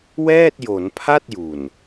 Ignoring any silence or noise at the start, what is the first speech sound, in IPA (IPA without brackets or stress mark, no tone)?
w